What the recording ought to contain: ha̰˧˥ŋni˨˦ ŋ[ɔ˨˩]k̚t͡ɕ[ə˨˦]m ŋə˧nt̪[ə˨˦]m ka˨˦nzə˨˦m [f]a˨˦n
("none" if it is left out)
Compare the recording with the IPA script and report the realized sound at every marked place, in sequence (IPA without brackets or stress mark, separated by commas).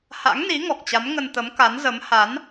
ɔ˨˩, a˨˦, ə˨˦, h